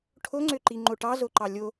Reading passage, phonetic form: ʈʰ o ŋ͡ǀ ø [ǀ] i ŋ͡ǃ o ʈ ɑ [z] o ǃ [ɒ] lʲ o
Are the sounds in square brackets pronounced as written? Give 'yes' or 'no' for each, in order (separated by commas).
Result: no, yes, no